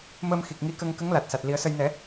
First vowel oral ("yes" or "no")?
yes